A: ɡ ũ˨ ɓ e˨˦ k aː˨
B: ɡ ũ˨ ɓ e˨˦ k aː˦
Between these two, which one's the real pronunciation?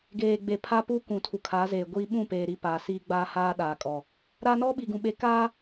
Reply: B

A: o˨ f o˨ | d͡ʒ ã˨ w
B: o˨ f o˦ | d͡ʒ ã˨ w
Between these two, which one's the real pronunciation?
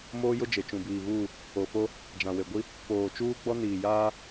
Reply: B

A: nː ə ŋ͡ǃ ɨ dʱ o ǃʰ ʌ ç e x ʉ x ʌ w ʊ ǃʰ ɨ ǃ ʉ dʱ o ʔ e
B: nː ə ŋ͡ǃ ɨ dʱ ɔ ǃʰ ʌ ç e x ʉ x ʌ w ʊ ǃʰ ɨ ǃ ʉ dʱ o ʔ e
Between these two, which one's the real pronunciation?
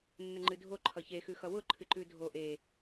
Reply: A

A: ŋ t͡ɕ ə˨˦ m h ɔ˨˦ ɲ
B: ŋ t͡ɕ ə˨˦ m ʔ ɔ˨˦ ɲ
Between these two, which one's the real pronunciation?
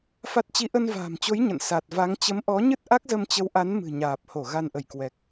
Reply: B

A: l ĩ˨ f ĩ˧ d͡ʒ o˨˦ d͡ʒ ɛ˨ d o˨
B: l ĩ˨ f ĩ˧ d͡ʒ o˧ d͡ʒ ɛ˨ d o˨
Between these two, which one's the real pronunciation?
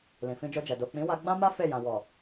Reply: B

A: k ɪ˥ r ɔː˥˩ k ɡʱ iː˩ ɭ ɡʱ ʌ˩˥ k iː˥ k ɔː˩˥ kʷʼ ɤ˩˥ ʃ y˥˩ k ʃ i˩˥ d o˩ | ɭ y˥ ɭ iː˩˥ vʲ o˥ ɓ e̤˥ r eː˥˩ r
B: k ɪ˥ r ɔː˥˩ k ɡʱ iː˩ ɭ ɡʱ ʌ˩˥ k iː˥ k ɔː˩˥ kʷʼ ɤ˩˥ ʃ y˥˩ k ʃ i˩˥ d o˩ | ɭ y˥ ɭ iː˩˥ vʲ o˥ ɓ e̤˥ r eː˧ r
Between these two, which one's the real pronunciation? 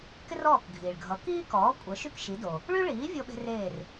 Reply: A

